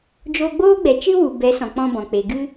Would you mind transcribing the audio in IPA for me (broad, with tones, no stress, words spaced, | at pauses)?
d͡ʒoː˧ɡ͡boː˦ɡ͡bɛ˨t͡ʃɨ˦ wu˨bɛ˨˦ sɔ̃˨ k͡pɔ̃˦bɔ̃˨ k͡pe˨ ɡɨ˦